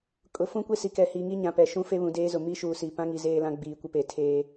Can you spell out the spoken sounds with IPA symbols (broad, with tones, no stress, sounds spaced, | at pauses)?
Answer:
kʼ ʊ˨ f ũ˦ kʷ e˦ s i˨ k ɛ˨ h iː˨ ŋ i˦ ɲ ã˨ p ɛ˨ ʃ ũ˦ f e˦ β ũ˨ d eː˦ z ʊ˨ m i˦ ʃ uː˨ s i˨ p ã˦ ŋ i˨ z eː˦ l ã˦ ɡ͡b iː˨ kʷ ɪ˦ p e˨ tʰ eː˦